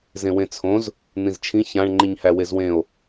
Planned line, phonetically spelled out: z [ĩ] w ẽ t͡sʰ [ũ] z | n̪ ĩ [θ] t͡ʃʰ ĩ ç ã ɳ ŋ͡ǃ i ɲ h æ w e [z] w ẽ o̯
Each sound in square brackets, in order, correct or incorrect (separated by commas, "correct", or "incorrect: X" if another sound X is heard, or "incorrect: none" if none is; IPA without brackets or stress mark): incorrect: ẽ, incorrect: õ, incorrect: z, correct